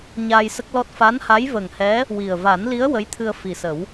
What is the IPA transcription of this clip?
ɲ aː˧ j s ə˦˥ k̚ l ɔ˦˥ t̚ f a˧˥ n h a˧˥ j v ə˨˩ ŋ h ɛ˧˥ | w i˨˩ ə̯ v a˨˩˦ n l i˧˥ ə̯ w ə˧˥ j t̪ʰ ɨ˧ ə̯ f i˨˩ s ə˨˩˦ w

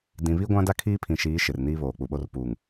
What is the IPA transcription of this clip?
d ĩ˨ β i˦ ɡʷ ã˦ d a˦ kʰ iː˦ pʰ ĩ˨ ʃ iː˨˦ ʃ ɪ˨ r n iː˦ β oː˨ k͡p u˨ ɓ o˦ r p uː˨ ŋ

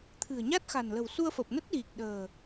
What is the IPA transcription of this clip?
t̪ʰ ɨ̤˨˩ ə̯ ɲ a˦˥ t̚ x a̤˨˩ n l ə̤˨˩ w s u˧ ə̯ f ə˨˩ p̚ n ə˦˥ t̚ ɣ i˨˩ k̚ ɗ ə̤ː˨˩

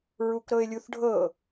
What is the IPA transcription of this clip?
ɹ u k ɾ ɤ ɪ̯ lʲ u θ ɖʱ ɤ

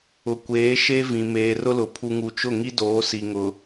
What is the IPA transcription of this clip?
ʊ˨ kʷ eː˨˦ ʃ e˦ v ĩ˨ m eː˨ r ʊ˦ l ʊ˨ pʰ u˨ ŋ u˨ t͡ʃ ʊ˦˨ ŋ i˦ d oː˨˦ s i˨ ŋ ʊ˨

